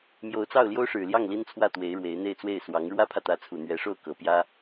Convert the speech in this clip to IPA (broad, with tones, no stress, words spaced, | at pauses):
mjo˧˥ʊ̯t͡sɑ˥˩ʊ̯ ljo˥ʊ̯ʂɻ̩˨˩ljɑ˥˩ŋ li˥nt͡sʰwä˥˩ t̪we˧˥ɪ̯ɻwe˧˥ɪ̯n̪e˥˧ɪ̯t͡swe˥˩ɪ̯ swɑ˧˥ŋ ɻwä˥pʰä˨t̪ä˧˥t͡sʰu˨˩ n̪ɥɛ˧˥ʂo˥˩ʊ̯kɤ˨˩ pjä˥